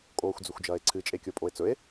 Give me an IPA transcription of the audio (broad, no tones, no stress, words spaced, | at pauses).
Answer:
kʼoːxʷd͡zɵxʷd͡ʒɐːe̯ǀʰɨ t͡ʃʼekʲopʼoe̯t͡sɵe̯